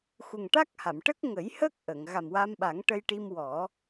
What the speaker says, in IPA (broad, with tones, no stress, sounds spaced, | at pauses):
x u˨˩ ŋ ʈ a˦˥ k̚ h a˨˩˨ m ʈ ə˦˥ k̚ ŋ ə˨˩˦ j h əː˦˥ k̚ ʔ ə˨˩˨ ŋ ɣ a˨˩ m w a˧ m ɓ a˨˩˦ ŋ ʈ ə˧ j ʈ i˧ m w ɔ˨˩˦